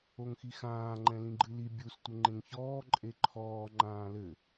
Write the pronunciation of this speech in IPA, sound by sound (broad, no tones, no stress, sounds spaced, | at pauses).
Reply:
o ŋ x i x ãː ŋ͡ǃ ɛ̃ l ĩ ɡ͡ǃ ɨ l i bʲ u s tʷ ɘ ŋ͡ǃ ẽ ŋ ç ɔː ǃʼ e ǃʰ ɔː ŋ͡ǃ ãː l ɘ